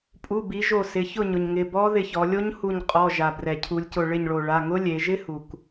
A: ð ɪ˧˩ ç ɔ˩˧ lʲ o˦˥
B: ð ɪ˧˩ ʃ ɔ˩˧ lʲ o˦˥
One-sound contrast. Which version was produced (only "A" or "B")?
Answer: A